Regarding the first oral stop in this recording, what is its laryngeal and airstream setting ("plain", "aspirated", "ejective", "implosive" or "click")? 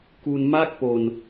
plain